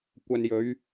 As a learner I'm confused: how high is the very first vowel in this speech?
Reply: low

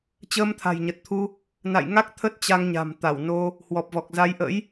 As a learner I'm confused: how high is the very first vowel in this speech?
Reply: mid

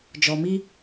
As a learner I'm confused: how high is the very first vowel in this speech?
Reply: mid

